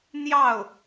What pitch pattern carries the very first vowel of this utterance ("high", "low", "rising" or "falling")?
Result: falling